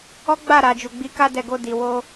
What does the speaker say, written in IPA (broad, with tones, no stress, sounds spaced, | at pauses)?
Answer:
ɔ˦ ɡ͡b a˦˨ ɾ a˨ d͡ʒ u˨ ɡ͡b i˨˦ k a˦ d ɛ˧ ɡ o˧ d i˨ w o˧